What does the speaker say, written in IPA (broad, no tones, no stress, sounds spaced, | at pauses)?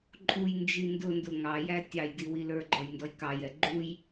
ǃʼ u j n d͡ʒ i n d ʊ n d ʊ ŋ ɑ j æ tʲ ɑ j d i w i l ə˞ ɡ͡ǃ ɔ j n d ɔ j k ɑ j ɛ ɡ͡ǃ u j